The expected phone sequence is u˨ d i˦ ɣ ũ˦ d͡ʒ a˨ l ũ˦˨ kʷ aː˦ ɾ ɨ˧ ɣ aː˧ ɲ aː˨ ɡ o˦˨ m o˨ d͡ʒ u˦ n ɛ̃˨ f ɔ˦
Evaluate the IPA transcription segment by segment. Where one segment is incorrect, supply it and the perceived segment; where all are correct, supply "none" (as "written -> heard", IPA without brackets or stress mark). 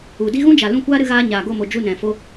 ɔ˦ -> o˦